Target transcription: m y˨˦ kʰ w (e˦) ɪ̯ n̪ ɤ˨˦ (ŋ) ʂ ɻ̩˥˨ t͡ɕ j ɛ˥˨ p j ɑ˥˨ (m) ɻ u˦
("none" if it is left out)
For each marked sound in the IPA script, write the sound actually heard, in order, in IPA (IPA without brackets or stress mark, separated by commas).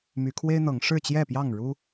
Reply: e˦, ŋ, ŋ